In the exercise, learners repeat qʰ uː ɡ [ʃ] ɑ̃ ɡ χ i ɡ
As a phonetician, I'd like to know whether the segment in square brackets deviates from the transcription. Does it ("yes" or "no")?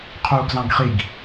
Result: yes